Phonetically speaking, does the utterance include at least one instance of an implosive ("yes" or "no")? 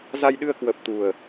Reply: yes